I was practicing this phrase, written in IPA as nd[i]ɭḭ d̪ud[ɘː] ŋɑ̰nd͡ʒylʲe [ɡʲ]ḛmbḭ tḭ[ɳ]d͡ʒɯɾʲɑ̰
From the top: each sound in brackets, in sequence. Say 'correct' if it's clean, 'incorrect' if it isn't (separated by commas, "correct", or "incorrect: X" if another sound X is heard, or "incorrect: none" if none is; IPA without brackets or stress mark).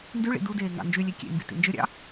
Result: incorrect: y, incorrect: eː, incorrect: kʲ, incorrect: n